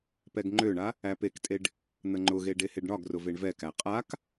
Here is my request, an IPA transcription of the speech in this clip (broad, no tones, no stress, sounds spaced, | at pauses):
p ɛ ɡ ŋ͡ǃ ø ɳ a | æ p e k tʼ e ɖ | n̪ ə ŋ͡ǃ ʊ ɣ e ɖ e h e ɖ ɳ ɒ ɡ r ʊ v e ɳ v ɛ k æ qʼ a k